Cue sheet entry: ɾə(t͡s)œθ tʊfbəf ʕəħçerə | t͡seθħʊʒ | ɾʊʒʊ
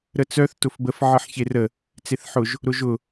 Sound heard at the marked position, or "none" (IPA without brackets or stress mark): t͡s